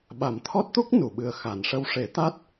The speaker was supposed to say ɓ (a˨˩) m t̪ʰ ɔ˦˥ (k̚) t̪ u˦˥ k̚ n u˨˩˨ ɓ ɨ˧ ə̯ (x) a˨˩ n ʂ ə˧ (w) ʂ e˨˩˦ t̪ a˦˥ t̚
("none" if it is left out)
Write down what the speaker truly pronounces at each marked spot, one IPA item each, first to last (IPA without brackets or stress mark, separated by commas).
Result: a˨˩, t̚, x, w